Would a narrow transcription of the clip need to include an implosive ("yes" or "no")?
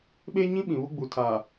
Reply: yes